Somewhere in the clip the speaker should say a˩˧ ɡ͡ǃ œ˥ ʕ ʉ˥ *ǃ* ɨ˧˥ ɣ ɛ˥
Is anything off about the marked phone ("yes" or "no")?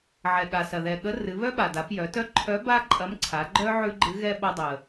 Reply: yes